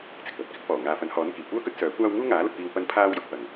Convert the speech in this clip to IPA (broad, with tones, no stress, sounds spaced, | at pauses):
t͡s ɪ˨˥ k̚ p ɐ˧ t̚ k ɪ˥ k̚ f ɔː˨˩ ŋ aː˨ f ɐ˨˥ n h ɔː˨˥ n k iː˨˩ kʷ œː˥ k ɵ˥ t̚ s œː˨˥ kʷ aː˥ w ŋ uː˥ ŋ aː˨˥ l ɐ˧ t̚ p iː˧ w p ɐ˥ n pʰ aː˥ w j ʊ˨˥ k̚ p ɐ˨ ŋ